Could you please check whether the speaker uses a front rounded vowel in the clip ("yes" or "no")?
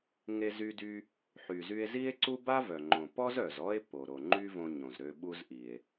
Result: yes